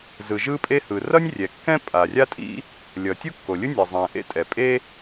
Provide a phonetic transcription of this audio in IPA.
z ɯ˩ ʒ ɯ˥ pʼ e˥ h ɯ˩ r ʌ˥ nʲ rʲ ɛ˩ kː ɛ̃˥ pʼ a˩ rʲ a˥ tʼ ḭ˥ | lʲ ʌ˩ tʲ u˥ kː o˩ lʲ ɯ˥ nʲ ʌ˩ zˤ ɛ̃˩ ʔ ḛ˥ tʼ ɛ˩ pʼ e˥

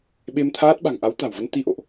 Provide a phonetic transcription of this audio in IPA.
ɓ e˧ m t̪ʰ aː˦˥ t̚ ɓ a̤˨˩ ŋ ʔ a˨˦ w t̪ a̤˨˩ w v ə˧ n t̪ i˧ ʔ o̰˧˨ ʔ

